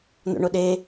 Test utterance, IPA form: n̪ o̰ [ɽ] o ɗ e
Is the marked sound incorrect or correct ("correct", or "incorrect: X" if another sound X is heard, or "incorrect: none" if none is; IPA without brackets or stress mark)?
incorrect: ɳ